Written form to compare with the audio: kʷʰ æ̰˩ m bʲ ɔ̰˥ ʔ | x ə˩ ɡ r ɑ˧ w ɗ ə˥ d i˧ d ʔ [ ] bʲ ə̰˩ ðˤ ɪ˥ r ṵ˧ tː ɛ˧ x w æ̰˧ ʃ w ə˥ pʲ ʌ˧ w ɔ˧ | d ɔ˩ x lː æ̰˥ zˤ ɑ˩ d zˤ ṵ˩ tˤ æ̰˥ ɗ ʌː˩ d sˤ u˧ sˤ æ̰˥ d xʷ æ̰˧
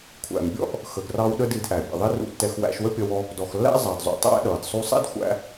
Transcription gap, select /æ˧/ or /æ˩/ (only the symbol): æ˩